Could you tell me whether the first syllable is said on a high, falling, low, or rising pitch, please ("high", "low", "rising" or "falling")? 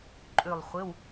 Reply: falling